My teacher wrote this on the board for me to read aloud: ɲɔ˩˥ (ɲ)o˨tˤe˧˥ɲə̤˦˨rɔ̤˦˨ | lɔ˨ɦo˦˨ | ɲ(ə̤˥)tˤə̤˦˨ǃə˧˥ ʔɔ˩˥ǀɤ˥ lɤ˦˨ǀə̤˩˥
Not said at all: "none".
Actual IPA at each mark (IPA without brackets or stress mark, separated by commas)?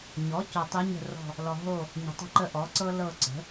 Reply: c, ə̤˨